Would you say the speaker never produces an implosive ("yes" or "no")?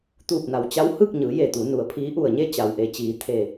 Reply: yes